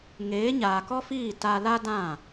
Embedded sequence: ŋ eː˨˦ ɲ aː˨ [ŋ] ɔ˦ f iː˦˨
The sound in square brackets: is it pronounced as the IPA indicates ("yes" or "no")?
no